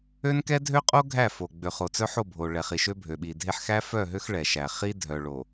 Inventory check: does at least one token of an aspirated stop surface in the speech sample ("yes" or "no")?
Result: no